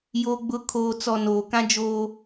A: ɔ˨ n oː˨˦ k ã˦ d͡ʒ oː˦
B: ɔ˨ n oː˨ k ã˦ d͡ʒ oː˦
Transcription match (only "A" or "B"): B